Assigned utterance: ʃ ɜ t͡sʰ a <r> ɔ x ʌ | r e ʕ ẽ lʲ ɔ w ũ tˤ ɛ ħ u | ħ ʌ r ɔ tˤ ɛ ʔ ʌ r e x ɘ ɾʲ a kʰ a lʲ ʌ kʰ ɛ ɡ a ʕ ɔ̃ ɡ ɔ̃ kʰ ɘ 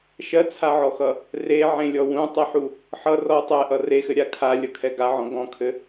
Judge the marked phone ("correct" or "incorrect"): incorrect